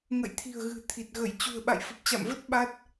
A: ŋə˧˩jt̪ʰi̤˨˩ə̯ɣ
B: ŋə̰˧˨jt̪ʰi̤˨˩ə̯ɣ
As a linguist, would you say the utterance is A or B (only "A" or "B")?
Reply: B